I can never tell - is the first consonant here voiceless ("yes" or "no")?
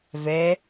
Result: no